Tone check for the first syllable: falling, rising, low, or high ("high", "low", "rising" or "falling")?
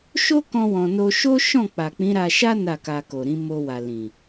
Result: high